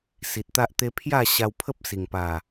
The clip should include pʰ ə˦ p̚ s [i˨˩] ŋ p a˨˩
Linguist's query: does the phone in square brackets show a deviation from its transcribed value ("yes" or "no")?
no